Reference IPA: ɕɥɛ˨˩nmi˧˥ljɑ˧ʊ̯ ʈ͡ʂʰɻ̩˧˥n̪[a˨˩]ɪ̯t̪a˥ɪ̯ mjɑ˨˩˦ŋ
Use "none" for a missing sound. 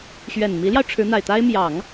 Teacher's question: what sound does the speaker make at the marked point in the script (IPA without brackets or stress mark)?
a˨˩